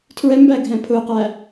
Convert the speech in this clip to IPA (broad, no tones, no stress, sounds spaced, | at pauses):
tʰ ɹ ɛ m b æ ɡʱ ɛ̃ pʰ ʊ q æ